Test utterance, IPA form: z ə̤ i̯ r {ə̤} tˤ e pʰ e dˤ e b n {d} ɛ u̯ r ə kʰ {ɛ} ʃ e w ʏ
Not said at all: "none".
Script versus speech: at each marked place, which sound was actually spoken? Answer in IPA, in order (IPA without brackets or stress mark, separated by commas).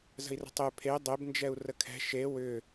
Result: ə̤, d͡ʒ, ɛ̤